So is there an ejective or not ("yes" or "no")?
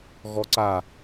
no